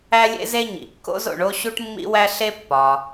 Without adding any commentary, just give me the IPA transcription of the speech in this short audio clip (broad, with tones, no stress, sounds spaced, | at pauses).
æ˥ lʲ ḛ˥ z e˥ ɲ ḭ˩ kː o̰˥ z o̰˩ ɳ o˥ ɕ u˥ ʈ mː ḭ˥ w æ˥ ɬ e˥ pː ɒ˩